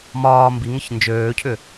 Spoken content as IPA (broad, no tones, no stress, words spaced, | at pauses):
mɒː mbiŋəç nd͡ʒøːcʰʏ